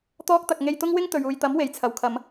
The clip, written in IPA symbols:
t̪ ɔː˧ k̚ t̪ ɐ˨ k̚ ŋ e˧ j t̪ ʊ˥ ŋ w ɪ˥ ŋ t̪ ɵ˨ ɥ uː˨ j t̪ ɐ˨˥ m w e˨ j t͡sʰ ɐ˨ w kʰ ɐ˨˧ m

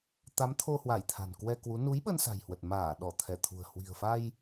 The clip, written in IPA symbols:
t̪ a˨˦ m t̪ʰ o˧ h w a˧˩ j t̪ʰ a̤˨˩ n k w ɛ˧ k w u˨˦ n u˨˦ j ɓ ə˧ n s a̤˨˩ j h w ə˨˩ t̚ m aː˧˩ ɗ ɔ˧˩ t̪ʰ ɛ˧˩ t̪ʰ ṳ˨˩ ə̯ h w i̤˨˩ ə̯ f a˧ j

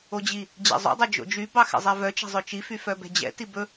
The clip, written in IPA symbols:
o d͡ʑ i | d͡ʑ ɛ̰ zˤ o̰ dˤ ɵ d͡ʒ o̰ d͡ʒ y b ɑ x ɛ̰ zˤ ɛ v œ t͡ʃ ɛ̤ zˤ ɵ t͡ʃ i f y f œ b ɛ̤ d͡ʑ ɛ̰ t i b ɵ

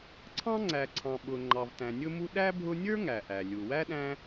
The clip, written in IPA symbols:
ǀʰ ɑ̃˥ ŋ͡ǀ æ˨ ǀʰ ɑ̃˨ ɓ ʊ˨ ŋ͡ǃ ɑ˨ v t æ̃˨ nʲ ʊ˦ m u˦ ɗ æ˥ bʱ ʊ˦ nʲ ə˞˥ ŋ æ˩ ʔ æ˩ lʲ u˩ w æ˥ ɗ æ̃˦

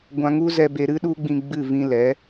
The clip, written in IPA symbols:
ɡʷ ã˧ ŋ u˦ z ɛ˧ b e˧ ɾ ɨ˦ ɗ u˦ ɡ͡b ĩ˧ ɡ͡b ɨ˦˨ v ĩ˧ l ɛ˨˦

